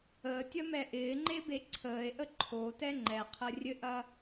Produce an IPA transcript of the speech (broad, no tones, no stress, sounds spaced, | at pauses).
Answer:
əː tʲ ɐ m ɛ ʔ ɪː ŋ͡ǃ e b e ǀʰ əː e̯ ʔ ə ǃʰ o t ɛ ŋ͡ǃ ɛ qʰ ɐ rʲ ɘ ʔ ɐ